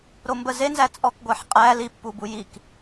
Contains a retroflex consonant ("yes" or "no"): no